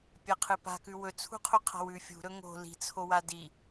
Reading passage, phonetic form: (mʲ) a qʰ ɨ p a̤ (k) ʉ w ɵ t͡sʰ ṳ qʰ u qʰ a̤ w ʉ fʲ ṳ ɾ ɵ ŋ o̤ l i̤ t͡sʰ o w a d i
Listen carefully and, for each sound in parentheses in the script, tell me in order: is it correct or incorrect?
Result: incorrect: pʲ, correct

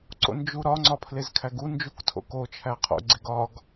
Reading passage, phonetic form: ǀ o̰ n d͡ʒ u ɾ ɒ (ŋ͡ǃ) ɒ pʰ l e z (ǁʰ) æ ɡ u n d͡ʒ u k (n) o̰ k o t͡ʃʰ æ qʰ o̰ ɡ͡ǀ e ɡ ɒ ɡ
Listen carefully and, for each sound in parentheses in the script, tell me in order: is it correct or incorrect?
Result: incorrect: ŋ͡ǀ, incorrect: kʰ, incorrect: tʰ

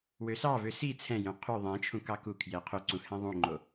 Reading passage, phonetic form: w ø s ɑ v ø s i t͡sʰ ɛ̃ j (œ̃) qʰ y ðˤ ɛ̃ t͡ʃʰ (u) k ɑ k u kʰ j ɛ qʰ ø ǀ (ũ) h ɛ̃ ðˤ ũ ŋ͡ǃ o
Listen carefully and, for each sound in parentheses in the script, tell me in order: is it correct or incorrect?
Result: correct, incorrect: ũ, correct

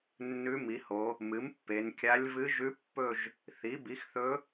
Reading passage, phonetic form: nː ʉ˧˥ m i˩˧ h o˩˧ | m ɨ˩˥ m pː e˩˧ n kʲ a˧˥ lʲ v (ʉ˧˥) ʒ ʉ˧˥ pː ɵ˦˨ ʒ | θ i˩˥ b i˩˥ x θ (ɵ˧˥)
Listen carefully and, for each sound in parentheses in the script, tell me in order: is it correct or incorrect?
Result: incorrect: ɨ˧˥, correct

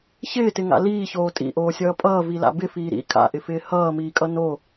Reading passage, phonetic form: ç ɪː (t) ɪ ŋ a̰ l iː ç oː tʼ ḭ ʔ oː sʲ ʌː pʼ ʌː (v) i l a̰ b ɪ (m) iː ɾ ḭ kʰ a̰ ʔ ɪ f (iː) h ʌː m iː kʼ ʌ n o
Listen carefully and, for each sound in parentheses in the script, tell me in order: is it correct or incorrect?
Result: correct, correct, incorrect: f, incorrect: ɪː

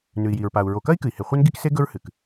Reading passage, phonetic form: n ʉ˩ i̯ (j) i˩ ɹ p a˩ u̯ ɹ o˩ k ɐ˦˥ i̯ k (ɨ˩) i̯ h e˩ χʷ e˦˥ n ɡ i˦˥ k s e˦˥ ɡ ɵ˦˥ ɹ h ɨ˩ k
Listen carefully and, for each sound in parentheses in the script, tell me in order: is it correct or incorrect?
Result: correct, correct

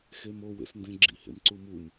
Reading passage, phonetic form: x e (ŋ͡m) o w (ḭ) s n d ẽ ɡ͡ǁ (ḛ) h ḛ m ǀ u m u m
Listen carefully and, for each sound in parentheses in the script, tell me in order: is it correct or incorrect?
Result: incorrect: m, incorrect: ḛ, incorrect: ḭ

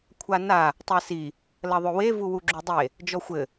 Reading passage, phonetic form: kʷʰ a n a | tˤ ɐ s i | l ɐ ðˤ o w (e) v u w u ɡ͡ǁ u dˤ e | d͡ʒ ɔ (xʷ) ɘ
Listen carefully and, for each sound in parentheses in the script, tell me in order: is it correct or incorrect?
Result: correct, correct

